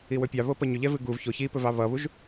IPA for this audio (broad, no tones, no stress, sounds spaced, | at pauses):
i w ɵ pʲ ɑ β o p ʌ ɲ ɵ ʎ ɛ v ɨ ɡ u v ç o ç i p ɵ v ɑ β ʌ β u ʒ